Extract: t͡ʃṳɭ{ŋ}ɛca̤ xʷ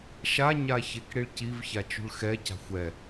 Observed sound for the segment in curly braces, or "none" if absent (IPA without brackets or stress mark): x